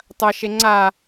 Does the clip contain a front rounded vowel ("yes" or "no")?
no